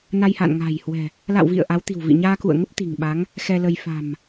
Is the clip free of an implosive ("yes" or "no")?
no